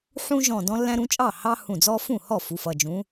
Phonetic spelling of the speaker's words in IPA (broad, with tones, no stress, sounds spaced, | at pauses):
ħ ũ˦ ʒ ɔ̃˧˩ d ɔ̃˦ lː æ̃˦ ɾ ũ˨˦ t͡ʃʼ ɑ˥˩ h ɑ˦ h ũ˧˩ d͡z ɔ˦ f ũ˥˩ h ɔ˥˩ f u˩˧˩ f ʌ˩˧˩ d͡ʒ ũ˨˦